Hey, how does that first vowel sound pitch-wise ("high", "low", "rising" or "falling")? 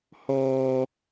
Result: high